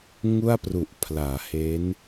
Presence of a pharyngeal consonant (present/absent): absent